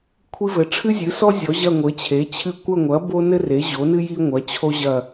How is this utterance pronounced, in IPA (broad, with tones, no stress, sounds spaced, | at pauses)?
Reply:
kʷʰ i˦ v ɘ˩˥ ʈ͡ʂʰ ɨ˦ zʲ ɨ˩˥ s ɔ˦ zʲ ɔ˩˥ ʑ ɐ˦˨ ŋʷ ɘ˩˥ t͡ɕʰ e˩˥ t͡ɕʰ ɨ˦ kʷ ɐ˦˨ ŋʷ ɐ˩˥ b o˦ n ɘ˦ r e˩˥ ʑ o˩˥ n ɨ˦ j i˦ ŋʷ ɐ˩˥ t͡ɕʰ o˦ ʑ ɐ˦˨